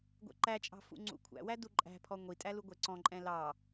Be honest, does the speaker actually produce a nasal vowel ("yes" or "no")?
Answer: yes